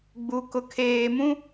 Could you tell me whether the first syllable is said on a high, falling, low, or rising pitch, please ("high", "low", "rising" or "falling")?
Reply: low